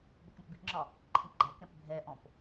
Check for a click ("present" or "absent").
present